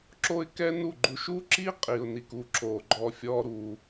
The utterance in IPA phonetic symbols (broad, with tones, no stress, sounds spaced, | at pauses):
ǁ o˦ ɪ̯ k ɛ˦ n u˦˨ ɡ͡ǃ u˧ ʃ u˦ ǁ i˦ qʼ i˨ ʊ̯ n i˨ k u˦˨ ǁ o˨ ɡ͡ǃ ɔ˧ fʲ ɔ˦ ɾ u˧